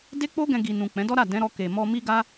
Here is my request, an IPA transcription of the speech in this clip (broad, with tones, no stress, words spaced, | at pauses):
de˦k͡po˦ɡɛ̃˧ɡi˨ nũ˨ k͡pɛ̃˨˦dɔ˦ɾa˦˨ dɛ̃˨˦ɾɔ˧ ke˨ mɔ˧mi˦ɡa˦